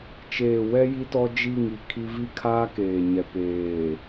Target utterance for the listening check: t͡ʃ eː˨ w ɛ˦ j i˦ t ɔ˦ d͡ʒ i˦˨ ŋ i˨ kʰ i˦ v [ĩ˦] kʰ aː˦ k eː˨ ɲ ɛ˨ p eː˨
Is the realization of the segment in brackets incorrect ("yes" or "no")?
yes